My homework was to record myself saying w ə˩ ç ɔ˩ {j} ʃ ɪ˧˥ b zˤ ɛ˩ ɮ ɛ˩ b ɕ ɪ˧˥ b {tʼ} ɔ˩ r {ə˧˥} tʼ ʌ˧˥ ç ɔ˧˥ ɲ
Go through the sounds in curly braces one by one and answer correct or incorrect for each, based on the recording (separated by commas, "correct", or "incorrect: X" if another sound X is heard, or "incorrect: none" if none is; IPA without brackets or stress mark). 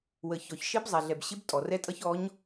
incorrect: ç, correct, incorrect: ɛ˧˥